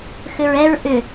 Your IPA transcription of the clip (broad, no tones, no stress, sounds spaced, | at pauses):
x ʏ ɹ ɛ ɹ ʔ ʏ